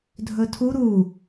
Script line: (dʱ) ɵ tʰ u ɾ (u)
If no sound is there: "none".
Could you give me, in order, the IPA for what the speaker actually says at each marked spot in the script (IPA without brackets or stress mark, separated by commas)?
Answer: dʱ, u